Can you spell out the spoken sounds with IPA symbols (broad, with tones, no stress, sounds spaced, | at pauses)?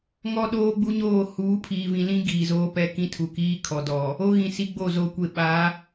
ŋ ɔ˦ ɗ oː˦ ɡ͡b u˦ ɲ oː˦˨ h uː˨˦ pʰ iː˨ v ĩ˨ l ĩ˦ ɡ iː˨ z oː˦ p ɛ˦ k ĩ˦ tʰ u˨ k iː˦ kʰ ɔ˨ d ɔ˨ | o˦ ɣ ĩ˨ s i˦ ɡ͡b o˦˨ z o˨ kʷ e˨ ɓ a˨˦